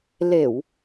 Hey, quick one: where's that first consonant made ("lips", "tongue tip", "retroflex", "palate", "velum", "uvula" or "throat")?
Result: tongue tip